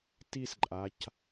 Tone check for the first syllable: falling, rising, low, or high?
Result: falling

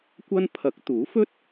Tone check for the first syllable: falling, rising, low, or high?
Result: high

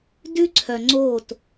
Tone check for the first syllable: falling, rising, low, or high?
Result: high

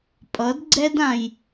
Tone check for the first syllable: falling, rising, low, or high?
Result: rising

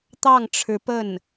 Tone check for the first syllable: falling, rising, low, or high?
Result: falling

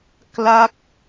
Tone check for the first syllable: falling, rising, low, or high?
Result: falling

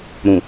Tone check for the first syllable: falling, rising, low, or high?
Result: low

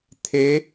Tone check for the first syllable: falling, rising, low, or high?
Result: rising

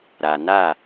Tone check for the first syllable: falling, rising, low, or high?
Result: low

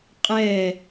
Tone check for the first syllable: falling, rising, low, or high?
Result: falling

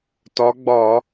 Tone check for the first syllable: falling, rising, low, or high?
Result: rising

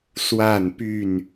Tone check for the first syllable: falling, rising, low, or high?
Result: falling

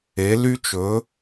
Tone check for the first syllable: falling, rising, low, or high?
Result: rising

